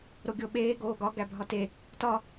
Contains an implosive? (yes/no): yes